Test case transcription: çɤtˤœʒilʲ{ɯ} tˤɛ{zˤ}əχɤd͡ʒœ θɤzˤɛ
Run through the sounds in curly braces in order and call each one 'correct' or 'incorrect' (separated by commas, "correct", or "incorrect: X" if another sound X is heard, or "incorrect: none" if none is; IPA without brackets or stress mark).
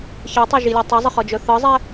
incorrect: ɤ, correct